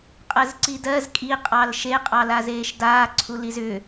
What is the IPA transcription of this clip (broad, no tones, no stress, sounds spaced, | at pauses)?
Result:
qʼ ɜ z ǀ i d ɜ z kʼ i qʼ ɑ l ʃ e qʼ ɑ l a z eː ʃ d aː ǀʰ u l i z ʏː